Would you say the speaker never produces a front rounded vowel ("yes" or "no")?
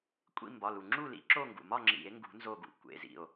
yes